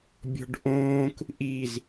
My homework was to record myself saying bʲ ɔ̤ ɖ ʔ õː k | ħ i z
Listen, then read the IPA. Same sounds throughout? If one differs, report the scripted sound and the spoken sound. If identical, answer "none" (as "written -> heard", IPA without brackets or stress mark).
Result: ħ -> ʔ